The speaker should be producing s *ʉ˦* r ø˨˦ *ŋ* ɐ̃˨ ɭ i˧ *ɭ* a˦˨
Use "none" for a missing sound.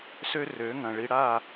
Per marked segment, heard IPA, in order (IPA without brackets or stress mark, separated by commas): ø˦, ŋ, ɽ